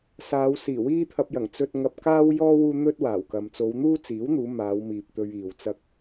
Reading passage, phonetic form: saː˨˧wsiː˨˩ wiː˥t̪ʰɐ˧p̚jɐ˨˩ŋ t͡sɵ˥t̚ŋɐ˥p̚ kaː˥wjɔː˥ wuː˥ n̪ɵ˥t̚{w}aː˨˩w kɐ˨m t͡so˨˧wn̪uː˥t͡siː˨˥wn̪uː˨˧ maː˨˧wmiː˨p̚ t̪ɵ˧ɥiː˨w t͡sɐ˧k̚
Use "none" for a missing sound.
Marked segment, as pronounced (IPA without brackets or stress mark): w